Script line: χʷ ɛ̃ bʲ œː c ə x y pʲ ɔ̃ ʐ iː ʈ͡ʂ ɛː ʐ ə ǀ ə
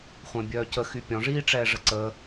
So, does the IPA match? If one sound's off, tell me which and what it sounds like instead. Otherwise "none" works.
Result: none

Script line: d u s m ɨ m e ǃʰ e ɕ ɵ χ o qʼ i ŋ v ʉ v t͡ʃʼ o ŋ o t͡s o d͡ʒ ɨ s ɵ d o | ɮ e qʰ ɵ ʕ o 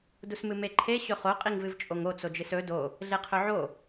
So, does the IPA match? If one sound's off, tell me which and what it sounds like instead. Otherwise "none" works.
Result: ʉ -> ɨ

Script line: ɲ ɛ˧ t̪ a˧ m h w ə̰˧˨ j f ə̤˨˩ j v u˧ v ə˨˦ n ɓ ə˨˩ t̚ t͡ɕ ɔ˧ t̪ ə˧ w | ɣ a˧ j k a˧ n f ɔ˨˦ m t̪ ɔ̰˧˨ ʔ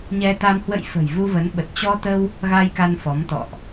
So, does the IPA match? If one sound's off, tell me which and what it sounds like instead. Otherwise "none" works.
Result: none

